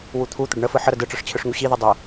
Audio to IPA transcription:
wut̪ʰut̪əɖ ɳəfɯ ħəɾə dɯʈ͡ʂɯʂ t͡ɕʰɯʂŋuɕiðɯ dˤə

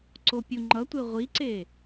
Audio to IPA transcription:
ǀopʲuŋ͡ǃʌtʷe ʁʷiǀe

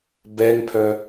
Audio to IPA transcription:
bɛŋpʰœ

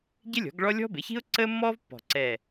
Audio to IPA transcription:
ɟɪ˥lʲɔ̤˩˥ɡɭɔ˥ lʲɔ̤˥bɪ˩˥çi̤˥ʊ̯ ǀəː˥mːɔː˥vpːɔ̤˨˩ ǀɛ˨˩

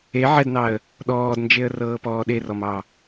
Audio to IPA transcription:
e ʕɛdnɑə̯ | ɗɔːdnd͡ʒeə̯rɤːpɔː ɗerɔmɑ

